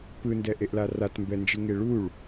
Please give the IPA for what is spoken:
p ɯ n d ɛ ʔ e ʔ l a r a t m b ɛ n d͡ʒ ɯ ŋ e ɭ u ɭ

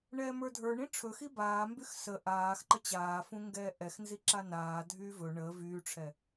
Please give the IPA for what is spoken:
ɳ ɛː m ə˞ dʱ ə˞ ɳ ĩ ʈ͡ʂʰ ɵ x i b aː m b y x s ə ʔ aː x ǃ ə t͡ɕ aː f ũ ŋ ɡ ɛː ʔ ɛ x n z i ǁ a n aː dʱ yː v ɵ ɳ ə v yː ʈ͡ʂʰ ɛ

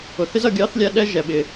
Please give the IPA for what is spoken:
ʊ˩ θ ɪ˥ z ʌ˩ ɡʲ ɑ˥ θ lʲ æ˥ ɗ ɛ˥ ʒ ɛ˩ ɓ ɪ˩

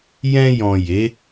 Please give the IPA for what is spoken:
j ɛ̃˧ j ɔ̃˨ j e˨˦

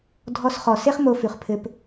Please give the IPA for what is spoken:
dʱ ɔ˧ s χ ɔ˨ s e˦ χ m o˧ f ʉ˨ χ pʰ ɘ˧ p

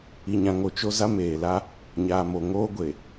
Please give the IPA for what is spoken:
i˨ ɲ ã˨ ŋ o˨ t͡ʃ o˨ z a˦ m eː˨ l a˦ | ɲ aː˨ m o˨ ŋ oː˦ ɡʷ e˨

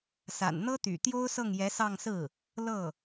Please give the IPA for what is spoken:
s a̰˨˩ n n̪ ɤ˥ t̪ y̰˨˩ t̪ j o˥ ʊ̯ s ɤ˥˩ ŋ j ɛ˧˥ s ɑ˥˧ ŋ s ɹ̩˥˩ | l ɤ˥˩

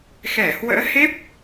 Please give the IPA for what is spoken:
x ɛ˧˩ h w ə̰ː˧˥ h e˦˥ p̚

